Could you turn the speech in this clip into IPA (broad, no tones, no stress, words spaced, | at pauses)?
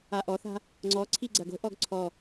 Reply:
aʔɔθa̤ | ŋ͡ǀɔǀʰi ɡ͡ǀɐɡo̤ʔɔɡ ǀʰɔ